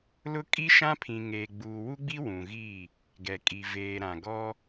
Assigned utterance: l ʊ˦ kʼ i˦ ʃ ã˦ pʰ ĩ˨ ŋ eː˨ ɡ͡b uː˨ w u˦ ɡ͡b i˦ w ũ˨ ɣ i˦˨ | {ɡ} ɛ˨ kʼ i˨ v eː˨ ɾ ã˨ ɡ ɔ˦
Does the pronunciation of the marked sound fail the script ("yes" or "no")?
no